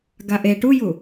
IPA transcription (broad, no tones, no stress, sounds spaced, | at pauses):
ɡ a ʔ e ʈ u j u